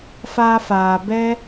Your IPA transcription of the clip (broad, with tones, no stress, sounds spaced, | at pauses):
f aː˧ f aː˨ b ɛ˧